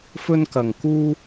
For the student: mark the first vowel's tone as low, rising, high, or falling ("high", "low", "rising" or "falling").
high